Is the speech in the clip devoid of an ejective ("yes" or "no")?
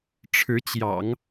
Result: yes